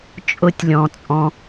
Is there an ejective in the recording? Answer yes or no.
yes